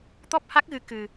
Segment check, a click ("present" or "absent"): absent